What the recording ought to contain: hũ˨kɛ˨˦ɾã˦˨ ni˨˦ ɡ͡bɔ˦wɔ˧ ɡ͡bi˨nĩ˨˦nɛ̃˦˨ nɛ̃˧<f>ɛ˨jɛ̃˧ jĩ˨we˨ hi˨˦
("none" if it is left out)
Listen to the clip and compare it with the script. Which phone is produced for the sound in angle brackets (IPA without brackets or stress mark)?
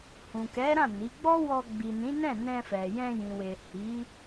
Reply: f